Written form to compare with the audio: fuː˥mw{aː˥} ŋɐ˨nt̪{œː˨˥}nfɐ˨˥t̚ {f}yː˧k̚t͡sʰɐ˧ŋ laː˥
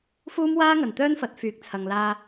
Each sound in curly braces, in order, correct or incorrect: correct, incorrect, correct

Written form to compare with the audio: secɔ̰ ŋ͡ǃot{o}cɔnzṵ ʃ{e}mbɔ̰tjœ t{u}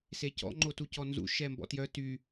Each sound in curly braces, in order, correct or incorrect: incorrect, incorrect, incorrect

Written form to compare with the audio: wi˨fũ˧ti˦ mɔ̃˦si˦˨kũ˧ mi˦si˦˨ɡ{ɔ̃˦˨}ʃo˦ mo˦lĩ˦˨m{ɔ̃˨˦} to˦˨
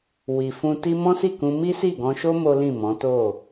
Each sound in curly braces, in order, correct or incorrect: incorrect, correct

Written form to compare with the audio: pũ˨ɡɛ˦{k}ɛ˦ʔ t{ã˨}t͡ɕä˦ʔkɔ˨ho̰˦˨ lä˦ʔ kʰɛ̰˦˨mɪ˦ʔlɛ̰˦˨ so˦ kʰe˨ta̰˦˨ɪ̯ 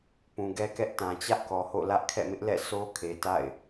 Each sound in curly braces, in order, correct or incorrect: correct, correct

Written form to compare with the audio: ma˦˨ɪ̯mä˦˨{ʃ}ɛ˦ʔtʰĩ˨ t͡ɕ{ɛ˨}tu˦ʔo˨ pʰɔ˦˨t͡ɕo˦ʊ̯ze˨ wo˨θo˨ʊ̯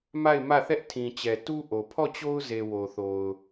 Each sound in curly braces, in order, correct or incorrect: incorrect, correct

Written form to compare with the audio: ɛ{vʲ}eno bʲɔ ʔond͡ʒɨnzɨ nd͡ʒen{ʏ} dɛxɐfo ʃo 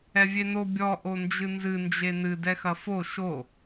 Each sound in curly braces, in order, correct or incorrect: correct, incorrect

